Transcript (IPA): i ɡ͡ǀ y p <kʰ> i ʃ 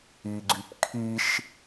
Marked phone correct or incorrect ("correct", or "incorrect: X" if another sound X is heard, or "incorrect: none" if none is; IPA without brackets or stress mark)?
correct